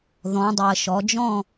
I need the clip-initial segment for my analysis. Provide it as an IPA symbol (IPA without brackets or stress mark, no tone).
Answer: ð